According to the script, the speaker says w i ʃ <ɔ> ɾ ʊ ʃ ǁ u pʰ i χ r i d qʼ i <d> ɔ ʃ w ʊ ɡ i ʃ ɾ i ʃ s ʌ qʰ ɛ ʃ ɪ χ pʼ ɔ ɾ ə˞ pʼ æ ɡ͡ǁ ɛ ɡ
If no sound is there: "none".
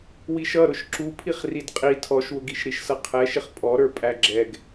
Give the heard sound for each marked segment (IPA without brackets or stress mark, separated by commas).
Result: ʌ, tʰ